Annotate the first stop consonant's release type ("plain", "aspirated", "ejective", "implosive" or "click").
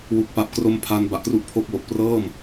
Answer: plain